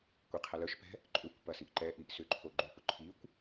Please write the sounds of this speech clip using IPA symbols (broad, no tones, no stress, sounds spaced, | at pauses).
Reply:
kʷ i qʰ ɐ l œ ʃ p ɛ̤ | ǃʼ ʏ kʷ p ɐ s i ʔ ǃ ɛ ʔ i ʔ s ʏ ǃʰ o ɡ͡ǃ ʏ p ʊ ǃʰ i kʷ